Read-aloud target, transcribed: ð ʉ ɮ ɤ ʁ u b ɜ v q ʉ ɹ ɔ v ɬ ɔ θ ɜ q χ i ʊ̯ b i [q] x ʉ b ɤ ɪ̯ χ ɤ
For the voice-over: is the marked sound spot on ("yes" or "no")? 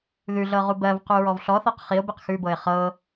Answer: yes